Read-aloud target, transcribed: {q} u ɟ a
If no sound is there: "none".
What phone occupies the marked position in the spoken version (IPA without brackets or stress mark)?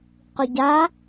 q